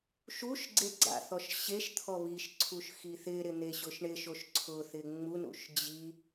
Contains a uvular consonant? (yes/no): no